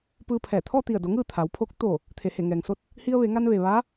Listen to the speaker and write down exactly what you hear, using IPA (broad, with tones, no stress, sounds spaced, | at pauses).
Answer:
p ɯː˧ pʰ ɛː˧˩ t̪ʰ ɔː˥˨ t̪ i˧˩ ə̯ d o˩˧ ŋ ɯː˥˨ t̪ʰ a˩˧ w pʰ oː˧˥ k̚ t̪ oː˧˩ | t̪ʰ e˩ h e˧˩ ŋ ɛː˩ ŋ s o˥˨ t̚ | h i˧ ə̯ ʋ e˩˧ ŋ a˧ n ʋ e˩ ʋ aː˧˥